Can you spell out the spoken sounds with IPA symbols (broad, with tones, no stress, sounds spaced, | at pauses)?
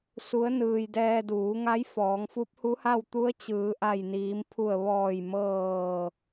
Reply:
s u˧˥ ə̯ n ɯː˧ j d ɛː˧ d uː˩˧ ŋ a˧˥ j f ɔː˩˧ ŋ f u˧˥ p̚ h u˧˥ h a˥˨ w t̪ u˧˥ ə̯ t͡ɕ ɯː˩˧ ʔ a˧˩ j n iː˩˧ m pʰ u˧˩ ə̯ ʋ ɔː˧˩ j m ɤː˧˩